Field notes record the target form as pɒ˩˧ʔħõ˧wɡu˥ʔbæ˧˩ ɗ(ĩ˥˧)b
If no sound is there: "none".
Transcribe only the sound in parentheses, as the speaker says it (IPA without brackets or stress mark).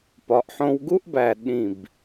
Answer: ĩ˧˩